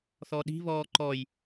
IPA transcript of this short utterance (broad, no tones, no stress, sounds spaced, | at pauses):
θ ɔ ɗ i̤ β ɔː ǃ ɔ j